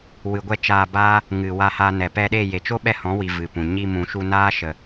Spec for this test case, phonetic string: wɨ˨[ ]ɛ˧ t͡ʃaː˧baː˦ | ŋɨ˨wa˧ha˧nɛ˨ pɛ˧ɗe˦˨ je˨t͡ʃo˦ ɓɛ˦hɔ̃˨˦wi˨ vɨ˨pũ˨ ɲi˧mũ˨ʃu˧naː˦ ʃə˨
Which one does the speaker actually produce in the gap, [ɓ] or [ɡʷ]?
ɡʷ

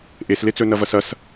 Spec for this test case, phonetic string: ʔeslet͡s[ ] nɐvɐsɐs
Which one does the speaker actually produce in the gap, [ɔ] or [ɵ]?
ɵ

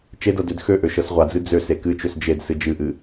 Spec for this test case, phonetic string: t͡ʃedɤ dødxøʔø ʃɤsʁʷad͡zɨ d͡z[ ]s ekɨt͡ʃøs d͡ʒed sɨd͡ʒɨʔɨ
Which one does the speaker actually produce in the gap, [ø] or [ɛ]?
ø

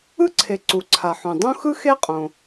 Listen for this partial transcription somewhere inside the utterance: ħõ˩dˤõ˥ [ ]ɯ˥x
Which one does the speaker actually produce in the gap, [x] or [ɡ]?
x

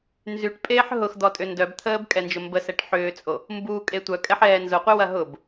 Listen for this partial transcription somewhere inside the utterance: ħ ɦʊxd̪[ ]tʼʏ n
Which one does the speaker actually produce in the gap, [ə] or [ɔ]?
ɔ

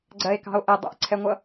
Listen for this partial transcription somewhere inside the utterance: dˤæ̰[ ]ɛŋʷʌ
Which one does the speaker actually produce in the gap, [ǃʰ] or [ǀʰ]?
ǀʰ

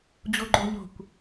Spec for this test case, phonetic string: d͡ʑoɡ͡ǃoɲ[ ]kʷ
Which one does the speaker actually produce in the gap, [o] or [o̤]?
o̤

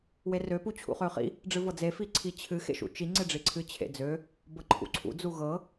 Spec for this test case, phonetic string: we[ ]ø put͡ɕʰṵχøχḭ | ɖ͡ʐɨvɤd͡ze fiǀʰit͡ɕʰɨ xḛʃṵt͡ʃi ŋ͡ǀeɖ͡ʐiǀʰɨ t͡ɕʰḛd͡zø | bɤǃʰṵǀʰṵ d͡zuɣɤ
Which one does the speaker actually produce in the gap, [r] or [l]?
r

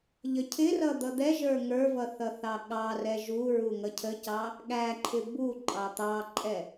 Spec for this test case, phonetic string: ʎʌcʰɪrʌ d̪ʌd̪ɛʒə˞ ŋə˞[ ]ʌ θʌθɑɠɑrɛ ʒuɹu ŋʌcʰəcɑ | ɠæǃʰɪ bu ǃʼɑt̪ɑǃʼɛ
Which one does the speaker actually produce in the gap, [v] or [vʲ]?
v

